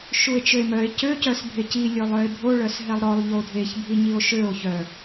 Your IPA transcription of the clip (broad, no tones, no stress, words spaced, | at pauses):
ʃue̯t͡ʃøe̯mœe̯ cø cœsbʱeci lʲɵlˠœe̯bʱo ɭœsɦɛlˠɾɔlˠ ʎodʱeç bʱiɲio̯ʃøo̯ çœ